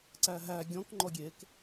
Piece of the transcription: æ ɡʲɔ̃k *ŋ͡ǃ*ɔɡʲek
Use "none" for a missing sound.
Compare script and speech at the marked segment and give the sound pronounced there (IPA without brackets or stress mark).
ŋ͡ǃ